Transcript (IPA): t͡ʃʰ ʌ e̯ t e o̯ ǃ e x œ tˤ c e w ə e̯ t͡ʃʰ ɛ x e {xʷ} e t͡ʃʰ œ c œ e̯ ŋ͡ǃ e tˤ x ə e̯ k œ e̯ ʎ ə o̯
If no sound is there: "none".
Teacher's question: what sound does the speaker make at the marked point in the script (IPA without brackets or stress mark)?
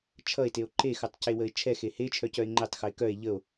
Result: h